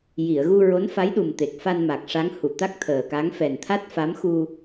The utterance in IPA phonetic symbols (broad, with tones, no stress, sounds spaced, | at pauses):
j i˨˩˨ ə̯ ɣ u˧ ɹ o˧˥ n f a˧˥ j ɗ u˨˩ m t̪ e˨˩ k̚ f a˧ n m a˨˩ k̚ ʂ a˧˥ ŋ h u˨˩˨ t̪ a˦˥ k̚ t̪ʰ əː˨˩ k a˧˥ ŋ f ɛ˨˩ n t̪ʰ a˦˥ t̚ f a˧˥ m x u˧